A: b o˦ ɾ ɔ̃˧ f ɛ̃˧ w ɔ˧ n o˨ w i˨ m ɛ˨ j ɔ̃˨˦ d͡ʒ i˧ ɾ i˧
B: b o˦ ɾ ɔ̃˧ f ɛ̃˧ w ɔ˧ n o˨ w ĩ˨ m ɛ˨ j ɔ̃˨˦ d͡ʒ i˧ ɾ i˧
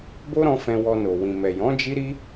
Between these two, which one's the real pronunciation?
B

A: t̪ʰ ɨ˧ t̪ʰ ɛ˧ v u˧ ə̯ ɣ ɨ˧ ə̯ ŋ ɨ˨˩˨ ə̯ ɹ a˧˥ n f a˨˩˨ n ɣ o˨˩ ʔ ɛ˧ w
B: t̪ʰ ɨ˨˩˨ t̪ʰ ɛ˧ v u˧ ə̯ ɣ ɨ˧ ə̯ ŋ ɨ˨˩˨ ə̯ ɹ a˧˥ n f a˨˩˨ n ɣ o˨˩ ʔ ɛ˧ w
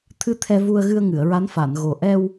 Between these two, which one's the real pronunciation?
A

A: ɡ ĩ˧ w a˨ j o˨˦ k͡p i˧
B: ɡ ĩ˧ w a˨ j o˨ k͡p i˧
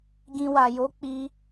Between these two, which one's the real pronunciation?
A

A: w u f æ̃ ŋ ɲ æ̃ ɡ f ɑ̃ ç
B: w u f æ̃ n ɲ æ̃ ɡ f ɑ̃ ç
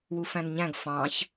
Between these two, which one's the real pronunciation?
B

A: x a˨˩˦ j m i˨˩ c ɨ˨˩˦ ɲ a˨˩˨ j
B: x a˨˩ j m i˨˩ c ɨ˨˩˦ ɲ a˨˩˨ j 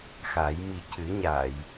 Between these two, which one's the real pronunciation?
A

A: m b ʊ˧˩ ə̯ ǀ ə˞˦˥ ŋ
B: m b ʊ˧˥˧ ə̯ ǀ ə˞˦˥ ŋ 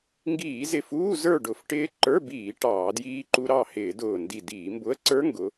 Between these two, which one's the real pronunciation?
B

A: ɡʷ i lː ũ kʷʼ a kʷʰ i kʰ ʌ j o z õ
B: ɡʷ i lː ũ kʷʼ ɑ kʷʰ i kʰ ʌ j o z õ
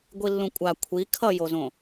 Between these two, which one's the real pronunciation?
A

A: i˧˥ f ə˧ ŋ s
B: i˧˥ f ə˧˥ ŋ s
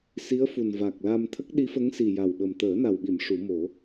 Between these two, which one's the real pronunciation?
B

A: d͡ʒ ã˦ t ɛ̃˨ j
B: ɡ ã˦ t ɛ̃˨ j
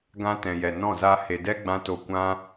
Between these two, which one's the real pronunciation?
B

